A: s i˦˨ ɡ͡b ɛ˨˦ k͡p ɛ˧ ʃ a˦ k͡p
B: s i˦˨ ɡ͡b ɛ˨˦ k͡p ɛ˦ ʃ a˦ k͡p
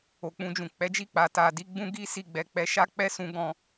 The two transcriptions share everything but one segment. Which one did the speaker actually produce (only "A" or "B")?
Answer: A